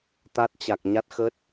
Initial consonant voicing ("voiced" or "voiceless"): voiceless